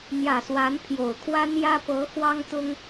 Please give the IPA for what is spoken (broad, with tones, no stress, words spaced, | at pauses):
n̪jä˨˩swa˧˥n pʰjo˨˩ʊ̯kʰwa˥njä˥ pɤ˧˥ xwɑ˥ŋt̪ʊ˥ŋ